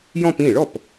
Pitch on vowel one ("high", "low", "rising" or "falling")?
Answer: falling